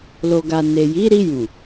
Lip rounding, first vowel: rounded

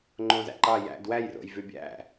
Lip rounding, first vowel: rounded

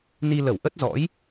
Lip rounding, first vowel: unrounded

